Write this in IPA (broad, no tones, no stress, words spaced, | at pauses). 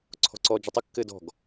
ǀʰɔ̤ǀɔd͡ʒə tˤɘkːɘːd ɔ̤ɡ